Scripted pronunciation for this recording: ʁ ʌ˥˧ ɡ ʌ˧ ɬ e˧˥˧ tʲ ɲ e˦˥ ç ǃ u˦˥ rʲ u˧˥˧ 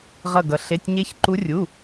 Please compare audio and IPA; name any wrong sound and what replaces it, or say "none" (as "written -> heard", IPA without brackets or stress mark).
none